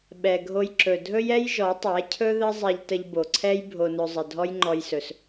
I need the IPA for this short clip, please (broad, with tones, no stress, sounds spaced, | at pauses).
ɓ ɛ˨ ɡʱ o˧ j ǁ ɵ˨ dʱ ɵ˦ j ɛ˦ j ʒ ɔ˨˦ tˤ ɛ˨˦ cʰ ɵ˦ ð ə˦ zˤ ɛ˧ ʎ t ə˧ ʎ b o˨ ǀʰ ɛ˦ j bʱ o˧ n ɵ˧ zˤ ə˨ dʱ ɔ˦ j ŋ͡ǃ ɔ˧ j s ɵ˨ s